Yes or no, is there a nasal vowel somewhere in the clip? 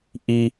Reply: no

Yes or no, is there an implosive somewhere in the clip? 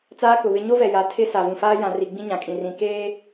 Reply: no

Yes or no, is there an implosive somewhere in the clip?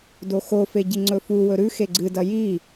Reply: no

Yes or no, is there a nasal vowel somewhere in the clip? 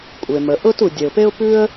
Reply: no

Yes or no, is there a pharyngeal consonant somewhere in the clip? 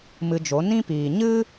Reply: no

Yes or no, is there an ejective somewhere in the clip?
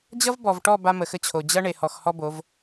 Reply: no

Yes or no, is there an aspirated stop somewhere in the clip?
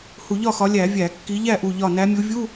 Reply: no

